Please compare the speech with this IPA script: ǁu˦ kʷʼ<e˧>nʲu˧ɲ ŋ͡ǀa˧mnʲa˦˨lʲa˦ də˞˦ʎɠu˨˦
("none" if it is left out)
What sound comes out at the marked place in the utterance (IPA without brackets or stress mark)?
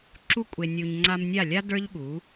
e˧